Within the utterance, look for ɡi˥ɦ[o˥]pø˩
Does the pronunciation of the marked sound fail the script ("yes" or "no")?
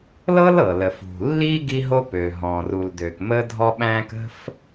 no